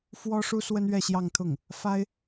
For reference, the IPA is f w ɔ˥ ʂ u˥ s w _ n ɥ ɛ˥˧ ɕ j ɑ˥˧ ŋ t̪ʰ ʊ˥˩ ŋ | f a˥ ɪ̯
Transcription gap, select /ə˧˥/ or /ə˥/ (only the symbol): ə˥